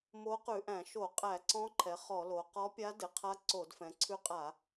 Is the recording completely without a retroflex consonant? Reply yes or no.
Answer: yes